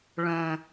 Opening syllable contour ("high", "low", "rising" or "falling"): low